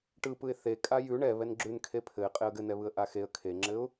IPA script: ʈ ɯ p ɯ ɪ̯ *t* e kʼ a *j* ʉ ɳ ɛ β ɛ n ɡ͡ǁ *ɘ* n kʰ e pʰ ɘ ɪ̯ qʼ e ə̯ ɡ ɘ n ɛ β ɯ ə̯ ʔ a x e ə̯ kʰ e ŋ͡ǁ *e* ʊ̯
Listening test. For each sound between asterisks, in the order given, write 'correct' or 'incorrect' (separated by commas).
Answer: incorrect, correct, incorrect, incorrect